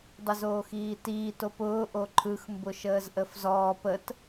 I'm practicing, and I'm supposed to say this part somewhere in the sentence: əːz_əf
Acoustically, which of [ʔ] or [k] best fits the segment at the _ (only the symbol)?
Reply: ʔ